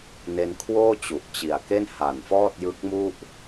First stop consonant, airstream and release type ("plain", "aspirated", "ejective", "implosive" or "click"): aspirated